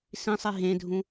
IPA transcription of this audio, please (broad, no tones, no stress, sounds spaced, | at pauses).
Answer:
s ĩ sˤ i ɦ ẽ dʱ ũ